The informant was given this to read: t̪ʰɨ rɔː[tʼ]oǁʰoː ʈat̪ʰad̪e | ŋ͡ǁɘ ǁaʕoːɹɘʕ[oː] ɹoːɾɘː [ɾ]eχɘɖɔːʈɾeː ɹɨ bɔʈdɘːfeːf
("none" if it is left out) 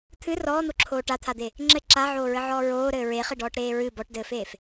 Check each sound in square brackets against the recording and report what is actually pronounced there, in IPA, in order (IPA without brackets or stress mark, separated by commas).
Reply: n̪, ɔː, ɹ